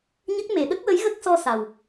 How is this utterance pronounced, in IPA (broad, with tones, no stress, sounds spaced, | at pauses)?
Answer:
ɲ ə˦˥ k̚ m e˨˩˨ ɗ ə˦˥ k̚ w ə˧˥ j ɣ ə˦˥ k̚ s ɔ˧ s a˨˩ w